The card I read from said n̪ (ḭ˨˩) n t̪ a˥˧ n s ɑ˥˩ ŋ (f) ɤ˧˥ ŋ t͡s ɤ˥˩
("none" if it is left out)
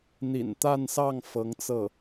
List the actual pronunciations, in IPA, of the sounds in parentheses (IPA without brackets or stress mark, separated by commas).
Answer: ḭ˨˩, f